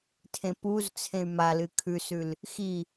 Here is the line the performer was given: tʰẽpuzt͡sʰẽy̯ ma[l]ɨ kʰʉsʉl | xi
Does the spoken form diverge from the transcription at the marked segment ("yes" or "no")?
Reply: no